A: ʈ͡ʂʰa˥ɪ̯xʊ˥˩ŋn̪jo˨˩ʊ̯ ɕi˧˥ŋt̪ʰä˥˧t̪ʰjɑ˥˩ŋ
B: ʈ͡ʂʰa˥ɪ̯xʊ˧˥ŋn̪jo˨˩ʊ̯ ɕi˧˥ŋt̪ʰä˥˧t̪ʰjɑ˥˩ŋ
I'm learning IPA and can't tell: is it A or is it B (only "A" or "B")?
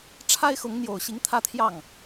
B